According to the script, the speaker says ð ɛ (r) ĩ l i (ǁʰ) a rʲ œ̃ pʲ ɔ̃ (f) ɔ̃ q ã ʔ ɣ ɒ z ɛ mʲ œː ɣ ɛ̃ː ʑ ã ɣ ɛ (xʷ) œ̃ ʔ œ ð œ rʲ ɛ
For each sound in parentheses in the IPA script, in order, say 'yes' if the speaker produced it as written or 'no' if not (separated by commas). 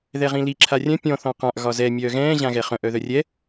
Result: no, yes, no, no